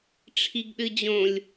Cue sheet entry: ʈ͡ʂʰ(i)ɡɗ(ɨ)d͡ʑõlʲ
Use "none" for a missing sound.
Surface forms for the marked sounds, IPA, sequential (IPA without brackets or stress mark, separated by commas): i, ɨ